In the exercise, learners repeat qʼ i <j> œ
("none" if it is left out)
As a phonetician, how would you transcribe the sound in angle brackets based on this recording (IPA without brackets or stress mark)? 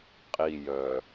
j